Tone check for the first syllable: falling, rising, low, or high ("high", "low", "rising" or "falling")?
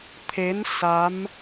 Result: rising